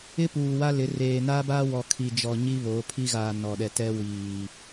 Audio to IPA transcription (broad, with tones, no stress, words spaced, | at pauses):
ɪ˦puː˨wa˦lɪ˨˦ reː˨na˦ba˦wɔ˨ kʰi˨d͡ʒɔ˨ ɲi˦βo˨˦pʰi˦ ɣa˨ nɔ˨ɗɛ˨ tɛ˦ wiː˨